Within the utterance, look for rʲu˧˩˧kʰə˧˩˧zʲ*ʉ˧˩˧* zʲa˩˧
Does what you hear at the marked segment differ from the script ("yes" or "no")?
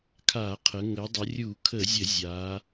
yes